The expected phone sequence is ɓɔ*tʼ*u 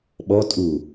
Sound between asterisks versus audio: correct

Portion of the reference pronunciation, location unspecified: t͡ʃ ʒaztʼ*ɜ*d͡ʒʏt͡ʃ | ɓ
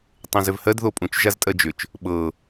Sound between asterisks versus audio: correct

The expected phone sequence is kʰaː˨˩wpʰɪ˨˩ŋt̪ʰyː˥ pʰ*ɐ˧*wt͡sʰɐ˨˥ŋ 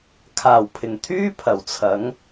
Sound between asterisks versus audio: incorrect: ɐ˨˩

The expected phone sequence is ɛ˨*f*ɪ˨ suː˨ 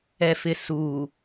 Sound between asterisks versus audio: correct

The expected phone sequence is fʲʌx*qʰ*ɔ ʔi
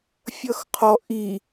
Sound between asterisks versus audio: correct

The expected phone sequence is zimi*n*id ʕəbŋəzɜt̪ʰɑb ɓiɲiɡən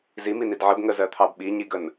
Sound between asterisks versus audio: correct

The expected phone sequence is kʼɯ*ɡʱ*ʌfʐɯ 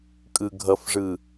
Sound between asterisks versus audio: correct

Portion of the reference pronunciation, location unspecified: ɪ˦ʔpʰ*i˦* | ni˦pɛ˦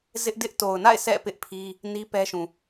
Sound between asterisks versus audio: correct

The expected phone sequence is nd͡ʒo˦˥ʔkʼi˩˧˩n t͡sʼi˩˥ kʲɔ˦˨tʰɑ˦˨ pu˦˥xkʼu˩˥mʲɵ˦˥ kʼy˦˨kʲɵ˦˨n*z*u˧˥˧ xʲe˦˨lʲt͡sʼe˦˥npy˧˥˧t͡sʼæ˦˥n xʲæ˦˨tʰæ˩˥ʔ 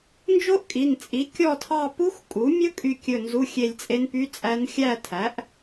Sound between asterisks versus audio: correct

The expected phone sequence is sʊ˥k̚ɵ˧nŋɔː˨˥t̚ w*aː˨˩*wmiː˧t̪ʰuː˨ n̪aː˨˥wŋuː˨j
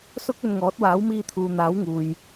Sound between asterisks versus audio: incorrect: aː˨˥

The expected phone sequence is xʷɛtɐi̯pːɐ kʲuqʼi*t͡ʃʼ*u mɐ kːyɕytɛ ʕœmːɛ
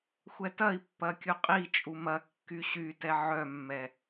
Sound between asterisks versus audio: correct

